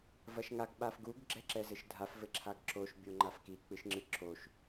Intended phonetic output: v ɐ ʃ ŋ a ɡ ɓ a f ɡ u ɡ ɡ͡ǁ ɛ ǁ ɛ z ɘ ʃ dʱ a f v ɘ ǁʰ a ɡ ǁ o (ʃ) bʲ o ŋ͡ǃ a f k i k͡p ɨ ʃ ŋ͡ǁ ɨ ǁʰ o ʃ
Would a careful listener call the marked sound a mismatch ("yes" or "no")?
no